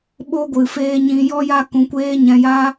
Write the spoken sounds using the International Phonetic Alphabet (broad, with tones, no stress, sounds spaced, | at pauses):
ɓ o˧ ɡʷ ɨ˨ f eː˧ ɲ ĩ˧ j ɔ˦ j a˦ k ũ˧ kʷ eː˦ ɲ ɛ̃˧ j a˦